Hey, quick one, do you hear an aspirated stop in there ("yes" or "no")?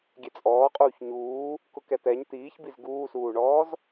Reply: no